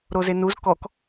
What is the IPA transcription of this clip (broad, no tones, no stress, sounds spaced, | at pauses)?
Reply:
ɾ o z e n u z k ɔ k